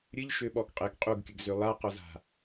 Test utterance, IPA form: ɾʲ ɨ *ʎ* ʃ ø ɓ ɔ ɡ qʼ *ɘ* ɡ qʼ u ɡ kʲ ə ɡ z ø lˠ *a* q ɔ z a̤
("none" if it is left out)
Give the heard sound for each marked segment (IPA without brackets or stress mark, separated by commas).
ʎ, ɘ, a